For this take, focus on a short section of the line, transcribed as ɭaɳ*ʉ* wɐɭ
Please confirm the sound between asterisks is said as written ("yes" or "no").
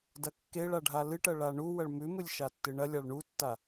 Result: no